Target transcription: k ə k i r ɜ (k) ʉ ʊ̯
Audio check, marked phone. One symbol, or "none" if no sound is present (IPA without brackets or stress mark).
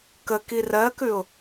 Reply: k